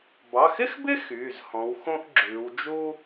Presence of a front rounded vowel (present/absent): present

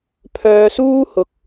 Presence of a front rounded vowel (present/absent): present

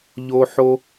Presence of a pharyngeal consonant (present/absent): present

